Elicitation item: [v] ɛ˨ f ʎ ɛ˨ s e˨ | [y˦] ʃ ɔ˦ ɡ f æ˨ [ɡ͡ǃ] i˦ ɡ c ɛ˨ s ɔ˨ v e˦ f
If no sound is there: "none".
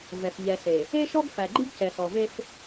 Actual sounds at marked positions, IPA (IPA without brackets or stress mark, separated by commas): v, e˦, ɡ͡ǃ